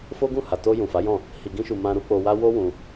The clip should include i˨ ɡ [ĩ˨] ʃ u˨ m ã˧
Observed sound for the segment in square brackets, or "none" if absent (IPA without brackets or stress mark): ĩ˧